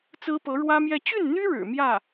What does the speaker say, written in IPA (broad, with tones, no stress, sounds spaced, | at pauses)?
t͡s ɹ̩˥ p ɤ˧˥ ɻ w ä˥ m j ɛ˥˧ t͡ɕ y˥˩ n n̪ y˥ ɻ ɻ̩˨˩ m j ä˥˩